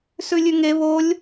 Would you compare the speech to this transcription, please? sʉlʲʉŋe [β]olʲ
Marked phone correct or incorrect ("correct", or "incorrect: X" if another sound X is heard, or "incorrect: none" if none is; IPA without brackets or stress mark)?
correct